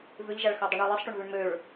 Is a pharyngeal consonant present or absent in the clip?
absent